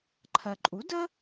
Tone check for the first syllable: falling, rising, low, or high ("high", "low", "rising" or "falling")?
low